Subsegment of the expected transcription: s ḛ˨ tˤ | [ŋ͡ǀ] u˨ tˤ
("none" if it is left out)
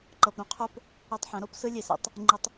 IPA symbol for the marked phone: ŋ͡ǃ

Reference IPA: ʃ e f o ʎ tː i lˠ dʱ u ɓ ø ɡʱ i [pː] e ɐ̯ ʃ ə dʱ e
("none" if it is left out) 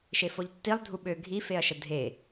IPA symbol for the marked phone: f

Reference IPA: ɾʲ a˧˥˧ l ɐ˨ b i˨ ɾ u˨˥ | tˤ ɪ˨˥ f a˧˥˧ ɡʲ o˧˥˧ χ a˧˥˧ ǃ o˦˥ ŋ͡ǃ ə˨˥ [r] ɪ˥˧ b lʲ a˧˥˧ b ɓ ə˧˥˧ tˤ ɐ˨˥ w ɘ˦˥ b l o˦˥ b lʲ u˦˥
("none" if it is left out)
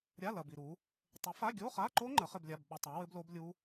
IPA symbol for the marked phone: χ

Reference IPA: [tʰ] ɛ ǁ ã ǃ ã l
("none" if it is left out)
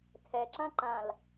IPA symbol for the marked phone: tʰ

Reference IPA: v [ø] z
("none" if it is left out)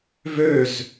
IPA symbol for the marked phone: ø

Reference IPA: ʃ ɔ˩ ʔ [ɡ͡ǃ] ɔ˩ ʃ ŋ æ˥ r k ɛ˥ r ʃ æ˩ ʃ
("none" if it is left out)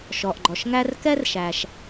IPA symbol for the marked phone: ɡ͡ǃ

